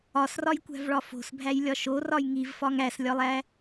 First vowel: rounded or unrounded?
rounded